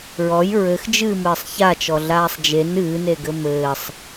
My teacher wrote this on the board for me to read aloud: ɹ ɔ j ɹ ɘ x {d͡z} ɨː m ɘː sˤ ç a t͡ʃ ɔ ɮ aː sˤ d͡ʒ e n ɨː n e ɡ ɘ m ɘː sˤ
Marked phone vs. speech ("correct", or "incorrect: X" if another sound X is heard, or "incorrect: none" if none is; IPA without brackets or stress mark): incorrect: d͡ʒ